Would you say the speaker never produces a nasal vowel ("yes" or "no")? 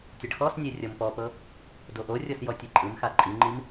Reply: yes